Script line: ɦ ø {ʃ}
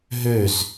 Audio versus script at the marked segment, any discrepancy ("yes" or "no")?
yes